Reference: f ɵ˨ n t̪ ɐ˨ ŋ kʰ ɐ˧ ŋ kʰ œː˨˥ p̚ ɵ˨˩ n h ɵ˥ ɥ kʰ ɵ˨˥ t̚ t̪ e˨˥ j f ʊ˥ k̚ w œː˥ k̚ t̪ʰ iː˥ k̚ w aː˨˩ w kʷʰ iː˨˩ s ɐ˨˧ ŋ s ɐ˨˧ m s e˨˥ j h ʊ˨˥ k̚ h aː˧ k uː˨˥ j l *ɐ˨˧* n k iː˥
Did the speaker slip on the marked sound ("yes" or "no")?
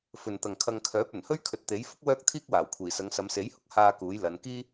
no